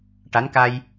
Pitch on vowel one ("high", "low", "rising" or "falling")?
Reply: rising